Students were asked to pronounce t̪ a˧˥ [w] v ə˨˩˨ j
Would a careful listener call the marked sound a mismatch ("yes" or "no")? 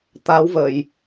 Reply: no